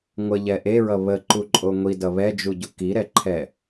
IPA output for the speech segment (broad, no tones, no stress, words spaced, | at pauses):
ŋʷəʎɛ ʔeɹʌ βəǃuǃʼo ŋʷidʌ βɛd͡ʒuɟu kiɾɛǃʰɛ